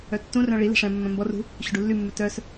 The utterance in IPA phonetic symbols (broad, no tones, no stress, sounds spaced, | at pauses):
œ tː ũ r œ̃ ɭ i l ɛ̤ ʂ ɛ̃ mː œ̃ m b ɔ r ṳ | ɕ ɵ ɖ u lː y mː ʉ t œ s